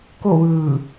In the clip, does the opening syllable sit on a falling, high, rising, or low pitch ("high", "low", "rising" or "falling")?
falling